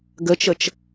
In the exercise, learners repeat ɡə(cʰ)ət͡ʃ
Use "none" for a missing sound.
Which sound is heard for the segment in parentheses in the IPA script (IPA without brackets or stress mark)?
t͡ʃ